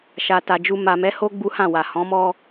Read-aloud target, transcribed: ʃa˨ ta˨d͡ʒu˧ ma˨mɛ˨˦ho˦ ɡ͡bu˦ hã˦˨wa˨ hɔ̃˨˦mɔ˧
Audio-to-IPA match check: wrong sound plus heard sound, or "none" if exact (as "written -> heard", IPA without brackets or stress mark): none